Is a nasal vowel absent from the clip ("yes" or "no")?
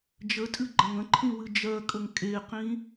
no